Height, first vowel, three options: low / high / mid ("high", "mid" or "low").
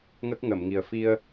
mid